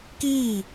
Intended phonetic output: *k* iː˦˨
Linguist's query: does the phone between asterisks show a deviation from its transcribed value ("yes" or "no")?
no